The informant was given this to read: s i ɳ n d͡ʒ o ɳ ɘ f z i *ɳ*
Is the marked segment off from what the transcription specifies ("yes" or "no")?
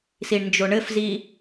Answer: yes